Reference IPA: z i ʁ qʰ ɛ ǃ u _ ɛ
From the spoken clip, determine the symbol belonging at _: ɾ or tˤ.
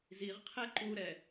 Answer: ɾ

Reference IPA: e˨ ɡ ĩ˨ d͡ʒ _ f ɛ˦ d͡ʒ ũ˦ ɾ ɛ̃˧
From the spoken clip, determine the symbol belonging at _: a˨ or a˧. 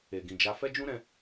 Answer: a˧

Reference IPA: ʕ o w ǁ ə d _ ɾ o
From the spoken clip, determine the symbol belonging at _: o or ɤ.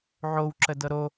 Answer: ɤ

